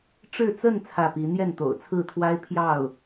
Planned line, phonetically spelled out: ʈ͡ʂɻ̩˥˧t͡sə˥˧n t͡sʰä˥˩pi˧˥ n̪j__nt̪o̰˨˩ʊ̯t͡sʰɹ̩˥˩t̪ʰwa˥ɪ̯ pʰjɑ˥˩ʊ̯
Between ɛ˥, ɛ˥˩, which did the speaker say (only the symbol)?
ɛ˥˩